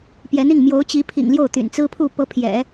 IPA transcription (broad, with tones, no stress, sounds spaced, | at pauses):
p j ɛ˧˥ n i˥˩ ŋ m j o˧˥ ʊ̯ t͡ɕ i˧˥ pʰ ḭ˨˩ ŋ l j o˥˩ ʊ̯ t̪ y̰˨˩ n t͡s ɹ̩˥ pʰ u˥˩ p ɤ˧˥ pʰ j ɛ̰˨˩˦